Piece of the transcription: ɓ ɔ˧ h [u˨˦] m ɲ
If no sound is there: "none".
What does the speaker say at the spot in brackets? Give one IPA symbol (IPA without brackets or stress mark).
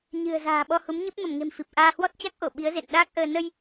u˨˦